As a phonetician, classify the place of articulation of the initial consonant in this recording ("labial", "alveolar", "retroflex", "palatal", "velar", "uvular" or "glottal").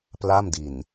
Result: labial